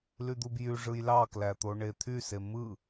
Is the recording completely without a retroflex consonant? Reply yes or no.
no